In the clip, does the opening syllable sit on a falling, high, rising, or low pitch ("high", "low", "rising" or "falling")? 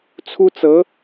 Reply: high